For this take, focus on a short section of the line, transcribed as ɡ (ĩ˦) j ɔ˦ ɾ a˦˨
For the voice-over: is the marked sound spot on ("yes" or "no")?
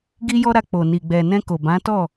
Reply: no